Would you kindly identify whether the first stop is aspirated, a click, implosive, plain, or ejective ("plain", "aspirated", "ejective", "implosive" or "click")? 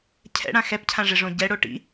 aspirated